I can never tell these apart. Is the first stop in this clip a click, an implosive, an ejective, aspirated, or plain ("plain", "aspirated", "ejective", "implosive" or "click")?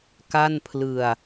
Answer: plain